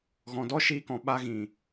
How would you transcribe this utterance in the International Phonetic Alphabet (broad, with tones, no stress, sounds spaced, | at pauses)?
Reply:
ɣ ɔ̃˨ d ɔ˦ ʃ iː˧ k ɔ̃˨ ɓ a˧ ɣ ĩ˨